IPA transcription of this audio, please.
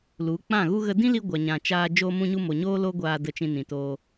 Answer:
lu˨˦k͡pã˦˨ɣu˦ ɣə˧ dĩ˦li˧ ɡʷa˨ɲã˨ t͡ʃaː˧ d͡ʒo˧mũ˧ɲu˧ mo˨ɲoː˦ lo˦ ɡʷaː˧ də˧ t͡ʃĩ˧nĩ˨toː˧

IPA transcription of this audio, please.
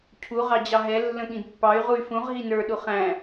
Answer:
cʰu ʁɑd͡ʑɑɦɛ lːə̃ɠĩdpːɑy̯ ʁuy̯fũʁ ɦinə˞ ɗuχæ̃

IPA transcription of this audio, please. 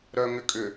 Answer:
ɾœŋʏkʼʏ

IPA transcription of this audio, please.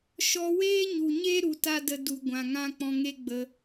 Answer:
ʃɔ˧weː˦ɲu˨ɲe˦ ɾu˧ta˦də˧ du˨ ɡʷã˨ŋã˦k͡pɔ̃˧ ŋe˦ ɡ͡bə˧

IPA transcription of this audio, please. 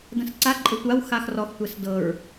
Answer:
də̃sǀa ǃʼɪtʷaw xaxrɔx tʷɛsdɤɹ

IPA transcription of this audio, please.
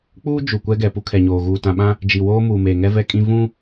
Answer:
k͡puː˦ d͡ʒu˨kʷɛ˦ɡɛ˨ pu˦kʰɛ˨ɲoː˨ ɣuː˨tã˨ɓã˦ | d͡ʒi˨woː˦ muː˨meː˨ŋɛ˦ vɛ˦kʼĩ˦ vũ˦

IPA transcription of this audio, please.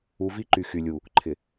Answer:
u˨˦vi˦ ǃy˨xy˨lʲu˨ | ǃʰɪ˨

